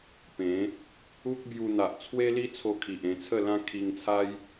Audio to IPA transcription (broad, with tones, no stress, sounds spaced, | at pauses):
p ẽ˨˦ | u˦ k̚ b j u˧ n̪ a˨ ʔ t͡sʰ w e˦ l i˦ t͡sʰ o˧ kʰ i˨ ʔ ẽ˧ t͡sʰ ə˥˧ l ã˦ kʰ i˧ ŋ t͡sʰ a˦ j